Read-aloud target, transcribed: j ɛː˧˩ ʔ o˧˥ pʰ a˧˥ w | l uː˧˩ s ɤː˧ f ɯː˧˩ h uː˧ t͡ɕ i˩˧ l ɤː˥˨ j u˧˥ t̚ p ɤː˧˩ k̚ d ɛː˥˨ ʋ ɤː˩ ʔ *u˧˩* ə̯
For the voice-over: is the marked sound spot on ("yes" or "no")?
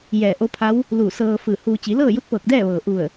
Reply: yes